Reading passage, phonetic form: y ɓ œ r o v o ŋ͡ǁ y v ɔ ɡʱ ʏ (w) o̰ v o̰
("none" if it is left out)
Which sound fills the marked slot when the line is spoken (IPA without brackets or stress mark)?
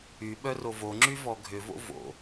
v